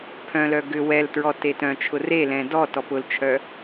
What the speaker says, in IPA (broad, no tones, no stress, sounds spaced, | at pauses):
pʰ œ̃ l œ ɡ ʏ w ɛ l t ɹ ɔ t e t œ̃ t͡ʃʰ ʊ r e l ɛ̃ d ɔ t ɔ p ʊ l t͡ʃʰ œ